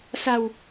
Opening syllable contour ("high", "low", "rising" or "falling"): low